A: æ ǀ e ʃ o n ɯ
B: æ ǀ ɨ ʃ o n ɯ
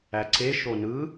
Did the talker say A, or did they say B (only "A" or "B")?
A